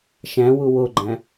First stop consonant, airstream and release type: click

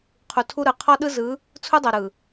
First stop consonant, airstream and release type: aspirated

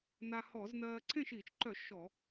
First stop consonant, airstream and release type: click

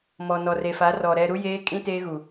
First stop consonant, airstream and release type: ejective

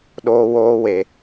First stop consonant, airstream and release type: implosive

